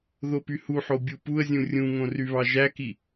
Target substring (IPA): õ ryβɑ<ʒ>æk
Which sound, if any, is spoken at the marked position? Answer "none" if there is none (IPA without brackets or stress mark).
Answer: ʒ